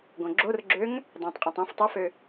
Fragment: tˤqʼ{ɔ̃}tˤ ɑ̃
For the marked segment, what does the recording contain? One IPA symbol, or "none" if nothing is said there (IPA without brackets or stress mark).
ɑ̃